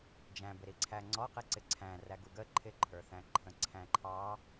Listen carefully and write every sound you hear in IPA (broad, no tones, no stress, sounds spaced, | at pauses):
d͡ʒ æ̃ b ɪ ɾ i ǀʰ æ ŋ͡ǀ ɔ q i ǀ ɪ ǀʰ æ̃ r æ ɡ u ɡ ə ǃʰ ɪ ǃʰ ə˞ θ æ̃ ǃʰ ə̃ ǀʰ æ̃ ǃʰ ɑ